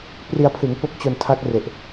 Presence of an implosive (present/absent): absent